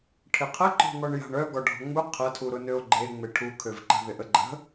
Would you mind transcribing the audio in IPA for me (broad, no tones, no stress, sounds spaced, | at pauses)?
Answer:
ʈʰ ɪ qʰ ə ǃ ɔ̤ ŋ ɔ ɳ j a̤ ɳ œ ɡ ɔ ɖʱ ɔ̤ ŋ͡m u qʰ ɐ tʰ u ɾ ʊ n ø o̯ ɡ͡ǃ e ŋ͡m e ʈʰ u kʰ ø v ǃ ə̤ ð ɪ ʔ ə ɡ͡ǃ ə̤